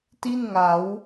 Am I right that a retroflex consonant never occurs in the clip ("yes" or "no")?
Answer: yes